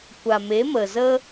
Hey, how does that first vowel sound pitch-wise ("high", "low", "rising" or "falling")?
low